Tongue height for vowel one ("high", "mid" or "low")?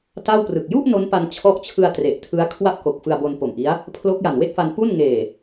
low